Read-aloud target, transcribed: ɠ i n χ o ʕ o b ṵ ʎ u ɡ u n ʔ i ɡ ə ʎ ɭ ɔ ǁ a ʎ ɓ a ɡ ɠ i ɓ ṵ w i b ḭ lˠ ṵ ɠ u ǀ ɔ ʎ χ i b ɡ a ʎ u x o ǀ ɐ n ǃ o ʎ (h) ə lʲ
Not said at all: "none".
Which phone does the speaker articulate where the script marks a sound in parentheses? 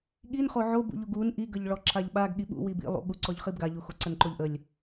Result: ʔ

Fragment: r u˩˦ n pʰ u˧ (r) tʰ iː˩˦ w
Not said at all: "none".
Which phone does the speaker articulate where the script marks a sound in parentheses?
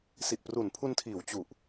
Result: n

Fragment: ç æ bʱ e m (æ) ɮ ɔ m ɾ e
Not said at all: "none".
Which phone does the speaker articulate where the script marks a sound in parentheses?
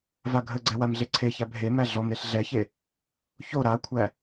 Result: æ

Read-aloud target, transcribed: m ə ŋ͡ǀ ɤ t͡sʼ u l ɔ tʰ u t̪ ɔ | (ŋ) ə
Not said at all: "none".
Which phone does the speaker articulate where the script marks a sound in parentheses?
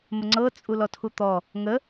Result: ŋ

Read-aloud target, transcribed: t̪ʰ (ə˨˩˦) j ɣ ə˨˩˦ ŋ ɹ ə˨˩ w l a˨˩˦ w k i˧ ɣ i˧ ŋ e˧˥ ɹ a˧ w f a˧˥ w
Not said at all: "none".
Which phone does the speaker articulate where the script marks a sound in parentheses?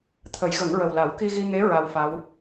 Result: ə˨˩˦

